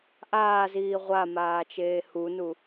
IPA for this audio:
ʔ aː z iː ʁʷ a m aː t͡ʃ eː h u n u

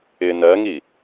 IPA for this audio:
ɪ n ɜ ŋ i

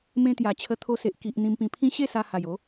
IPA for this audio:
m ẽ˧ t̪ j a˨˩ t͡ɕʰ ə˧ t̪ʰ o˧ s e˨ ʔ k i˨ ʔ n̪ ĩ˧ m p ĩ˧ pʰ ĩ˦ ɕ e˥˧ s a˧ h a˨˩ j o˨˦

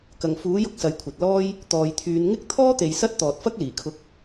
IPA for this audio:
k ɐ˨˩ ŋ f uː˨˥ j ʊ˧ k̚ s ɐ˨ j kʷʰ ɐ˨ t̚ l ɔː˥ j | t̪ ɔː˨ j t̪ʰ yː˨˧ n ŋ ɪ˥ k̚ t̪ʰ ɔː˥ t̪ e˨ j s ɐ˥ t̚ t̪ ɔː˨ t̚ f ɐ˥ k̚ l iː˨˩ kʰ ʊ˧ k̚

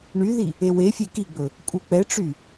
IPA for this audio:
ɳ y ð i | e w e fʲ e k i ɡ͡b ɵ | kʼ u k͡p ɛ ʈ͡ʂ y

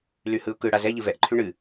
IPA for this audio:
l y h ɯ ʊ̯ k ɯ ɽ a z ɛ ʎ ɨ v ɛ ʔ ǃʰ y ɳ ɨ

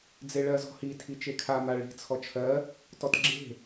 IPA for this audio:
d͡z e ɭ ɜ z ɔ̤ h i tʰ i t͡ʃ e kʰ a m a ɭ i̤ t͡sʰ ɔ t͡ʃʰ ɜ | t ɔ t ɡ͡ǁ e̤

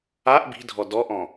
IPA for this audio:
a ʔ b i̤ dʱ ɔ d ɔ ʔ ɔ̃

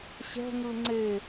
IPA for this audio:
ɕ ɛ̤ ŋ ɯ ŋ͡ǀ e

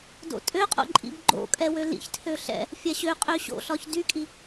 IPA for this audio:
d o̰ tʼ ø qʼ o̰ ǃʼ ḭ b ɡ͡ǃ o̰ kʼ ɛ w ø l ḭ ç tʰ ø ɬ ɛ̰ | fʲ a ɕ ø qʼ ø ɕ o̰ ɬ ɒ ç d y kʼ i

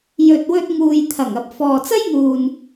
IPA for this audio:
j ɵ˨ t̚ w ɵ˧ t̚ ŋ uː˨ j t̪ʰ ɐ˨˩ ŋ ɐ˨ p̚ f ɔː˨ t͡s ɐ˥ j m uː˨ n

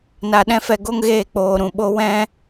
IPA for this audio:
n a˧ ɗ ɛ̃˦ f ɛ˧ ɡ o˦ ŋ ɣ eː˦˨ k͡p oː˨ ɾ ũ˨ ɓ o˧ w ɛ̃˦

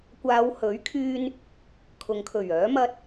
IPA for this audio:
kʷ aː˨˧ w h ɵ˨˥ ɥ kʰ yː˧ n | kʰ ʊ˨ ŋ kʰ ɵ˨˩ ɥ œː˨˥ m ɐ˧ t̚

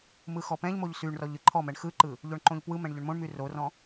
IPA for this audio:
m ɯ x ɔ p ɛ̃ ʎ m o ʎ s y ɳ r ɔ ʎ ɯ ǃʰ ɔ m ɛ ɳ x ɯ ǃ ɯ | ʎ o ɳ ǃ õ ʎ p w ɯ m ɛ̃ ɳ ʎ ɵ ɳ m õ ɳ m y r o r ɔ̃

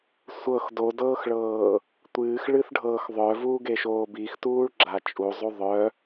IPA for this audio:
sʷ ɤ x d o d ɤː x ɭ ɤː | tʷ ɨː x ɭ ɨ θ ɖʱ ɤː x ðˤ œ v uː ɡ e ʃ oː b i x t uː ɭ ɡ͡ǁ a t͡ʃʼ u zˤ u ðˤ œ

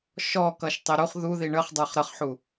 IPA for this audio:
ʃ ɔ k ʌ ʃ tˤ ɪ ɾ u χ ð u ð i ɳ ə χ dˤ ə˞ χ ɾ ə χ ħ u

